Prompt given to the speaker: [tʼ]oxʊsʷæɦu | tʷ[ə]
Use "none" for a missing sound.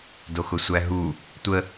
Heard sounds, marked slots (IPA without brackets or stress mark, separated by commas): d, ə